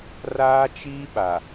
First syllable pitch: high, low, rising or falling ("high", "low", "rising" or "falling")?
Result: high